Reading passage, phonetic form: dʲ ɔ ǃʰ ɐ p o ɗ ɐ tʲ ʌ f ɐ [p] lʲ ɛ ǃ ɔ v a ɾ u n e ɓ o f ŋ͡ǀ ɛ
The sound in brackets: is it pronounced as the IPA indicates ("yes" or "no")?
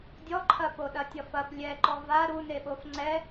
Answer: yes